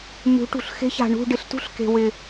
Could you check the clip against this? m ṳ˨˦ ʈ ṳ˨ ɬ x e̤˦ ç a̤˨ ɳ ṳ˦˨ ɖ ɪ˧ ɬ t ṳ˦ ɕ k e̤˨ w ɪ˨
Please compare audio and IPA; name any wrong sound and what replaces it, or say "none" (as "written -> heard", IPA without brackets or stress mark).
ɕ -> ɬ